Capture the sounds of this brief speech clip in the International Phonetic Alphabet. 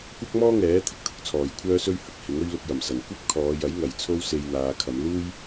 kʷɐ˥k̚mɔː˥ŋɛː˨˥ t̪ʰɪ˥k̚t̪ʰʊ˨˥k̚t͡sʰɔː˨j kʷʰœː˥sɵ˥ɥ hɐ˨k̚hɪ˨˥ŋ ɵ˥ɥlʊ˧k̚jɐ˨˩msɐ˨˩n kʷɐ˥p̚kʰɔː˨˧jɐ˨˥j ŋɐ˨jt͡sʰo˥w se˧jn̪aː˨˧kʰɐ˨˧m luː˥j

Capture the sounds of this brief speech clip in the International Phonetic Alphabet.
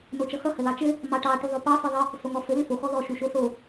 not͡ʃʌxʌ həlɑt͡ʃɘ | mɑʈɑ ʈuðˤopɑ fɘðˤə | soŋɔfɘ lʏfo xɔðɔ ʃuʃoso

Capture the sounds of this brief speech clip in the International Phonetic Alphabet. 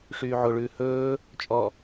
ʂyːʕoɭʉː hɵː | t͡ʃʼɔ

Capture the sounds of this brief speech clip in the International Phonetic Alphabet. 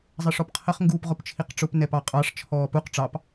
zˤɜʂɔpqʰəχ ŋɡuːpʁʊpt͡ʃʰiqʈ͡ʂʊp nɛpɑqʼɑʂ t͡ʃʰɔːpuq ʈ͡ʂɑp

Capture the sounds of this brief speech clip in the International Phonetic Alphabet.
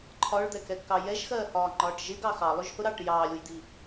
ǃʰɒɭd̪ɛkɛɡkɑ jɛʒxɜːhɒːŋ͡ǃɒːʈ ʒɪɡɑ xɑlˠʊʒ hʊɾɑːʈ jɑːlʲujd̪i

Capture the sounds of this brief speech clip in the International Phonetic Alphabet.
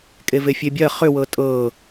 kʼevefʲebʲɜ χʏwɤ tʼɤ

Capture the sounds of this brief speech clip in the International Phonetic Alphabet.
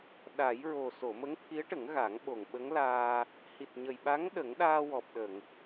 ɗa˨˩˦jɹo˨˩ so˨˩˨mə˧˥ŋt̪ʰi˧˥ə̯ʈə˨˩˦ŋ ɣa˨˩˦ŋɓo˨˩ŋɓə˧˥ŋlaː˧ | hi˨˩t̚ɲə˨˩jɓa˧˥ŋ ɗə˨˩˦ŋɗaː˧wɔ˨˩p̚ ɗə˨˩˨ŋ

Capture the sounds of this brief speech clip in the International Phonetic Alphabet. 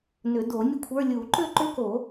nʏ˨˩˦do˨˩˦ nʲə˥˧kʷʰə˞˧˥˧ lʲu˨˩˦ǃʏ˥˧ ǃʏ˦˥ko˨˩˦

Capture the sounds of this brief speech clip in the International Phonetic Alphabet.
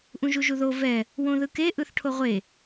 ʔũʒuʒuðo vɛ | wõðɯke ʔɯθʈʰoʁʷe

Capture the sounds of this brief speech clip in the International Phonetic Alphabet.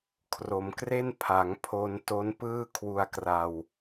kʰro˩˦mkre˥˩n pʰa˩˦ŋpʰo˧n to˦˥npɯː˥˩ kʰwu˧a̯kra˧w

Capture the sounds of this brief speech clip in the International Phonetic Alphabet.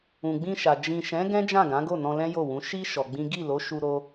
ũ˨ɡ͡bĩ˧ʃa˨ d͡ʒĩ˨ʃɛ̃˨˦ ɡɛ̃˦d͡ʒã˦˨ɡã˨˦ɡo˦˨ nɔ̃˧lɛ̃˦jo˦˨wũ˨˦ ʃi˦ ʃɔ˧ɡ͡bĩ˦ ɡi˦˨lo˨˦ʃu˧ ɾo˦

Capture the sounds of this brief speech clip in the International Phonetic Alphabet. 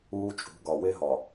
uː˦t͡ʃʼṳ˨˦ ɡɒ˨we˦ɦɒ˨

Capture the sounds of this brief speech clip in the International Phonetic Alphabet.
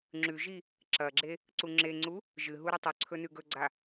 ŋ͡ǁʉʒi | ǁɐɡ͡ǁe | ǀuŋ͡ǁeŋ͡ǀu | ʒɨɦu ɾɨtˤɵǀʰɵ nʉɡɵɡ͡ǀa

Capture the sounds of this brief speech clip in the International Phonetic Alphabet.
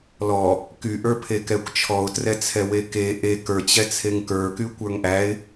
lɔ | kyʔə˞ pʰekɛkʷt͡ʃʰɔʊ̯trɛ t͡sʰɛweke ʔe kə˞t͡ɕɛt͡sʰeŋ kə˞ky kʷə˞ŋʔæɪ̯

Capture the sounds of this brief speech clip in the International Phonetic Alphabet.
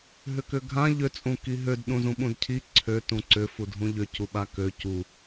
ɦʏkʏɡʱã ʎø t͡sʼũkiɦød ɗũzũɓũdcʰi ǀʰø tũǀʏ fudʱũʎʏ cuɓakø cu

